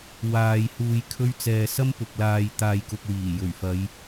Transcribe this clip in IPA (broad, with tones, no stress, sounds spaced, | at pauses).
w aː˨ j h uː˧ j kʰ ɵ˥ ɥ t͡s ɛː˧ s ɐ˥ m p ʊ˨ k̚ l aː˧ j t̪ aː˧ j k ʊ˧ k̚ w iː˨˩ j ɵ˨˩ ɥ f ɐ˨˧ j